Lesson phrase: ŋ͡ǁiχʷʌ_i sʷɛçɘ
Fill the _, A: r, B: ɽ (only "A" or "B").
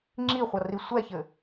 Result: A